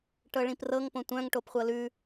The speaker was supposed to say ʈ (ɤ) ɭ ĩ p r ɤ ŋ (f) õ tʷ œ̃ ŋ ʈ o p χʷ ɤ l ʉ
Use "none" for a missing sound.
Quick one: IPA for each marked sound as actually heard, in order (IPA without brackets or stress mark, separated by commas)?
ɤ, p